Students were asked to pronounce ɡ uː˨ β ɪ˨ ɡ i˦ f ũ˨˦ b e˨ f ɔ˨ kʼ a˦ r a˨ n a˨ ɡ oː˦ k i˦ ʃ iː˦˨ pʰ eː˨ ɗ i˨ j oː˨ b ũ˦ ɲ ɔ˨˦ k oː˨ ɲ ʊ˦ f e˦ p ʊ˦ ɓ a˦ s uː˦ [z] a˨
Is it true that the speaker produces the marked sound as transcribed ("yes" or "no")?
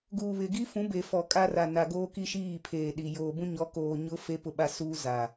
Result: yes